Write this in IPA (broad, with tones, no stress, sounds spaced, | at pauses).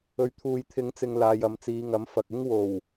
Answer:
ɵ˨ ɥ t̪ʰ uː˨ j t̪ʰ ɪ˨˧ ŋ t͡s ɪ˨ ŋ l aː˨ j ɐ˨˧ m t͡s iː˨˧ ŋ ɐ˨˥ m f ɐ˨ k̚ ɪ˥ ŋ w o˨˩ w